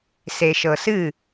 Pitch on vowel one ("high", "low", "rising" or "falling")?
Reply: low